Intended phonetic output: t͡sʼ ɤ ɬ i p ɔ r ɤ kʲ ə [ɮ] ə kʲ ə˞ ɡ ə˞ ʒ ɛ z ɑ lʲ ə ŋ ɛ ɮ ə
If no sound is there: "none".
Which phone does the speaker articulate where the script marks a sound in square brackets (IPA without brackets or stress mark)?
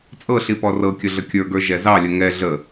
ɮ